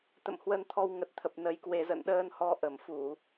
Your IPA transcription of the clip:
t̪ə̰˧˨mhwə˧n t̪ʰɔ˧w ŋə˨˩t̚t̪ʰə˨˩p̚ nə˧jkwe˧ zə̰˧˨nɗəː˧nhɔ˧ ʔə˧˩mfu˧˩˨

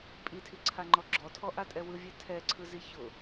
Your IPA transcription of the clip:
pʼitʰiǀʰaŋ͡ǃɔ ɡ͡ǁɔtʰɔʔatʼɛ wɯvʲɛ tʰɛǀʰɯzi çʊ

